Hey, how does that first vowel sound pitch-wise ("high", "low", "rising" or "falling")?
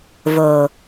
low